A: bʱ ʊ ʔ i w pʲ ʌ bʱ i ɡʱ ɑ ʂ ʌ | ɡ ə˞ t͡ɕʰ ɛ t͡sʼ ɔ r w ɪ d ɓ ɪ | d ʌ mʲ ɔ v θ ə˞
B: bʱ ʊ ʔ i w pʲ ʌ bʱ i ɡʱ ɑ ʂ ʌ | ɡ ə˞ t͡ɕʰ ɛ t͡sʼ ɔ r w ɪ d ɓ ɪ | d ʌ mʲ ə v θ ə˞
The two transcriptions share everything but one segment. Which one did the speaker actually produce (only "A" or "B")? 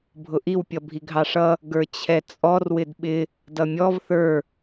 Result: A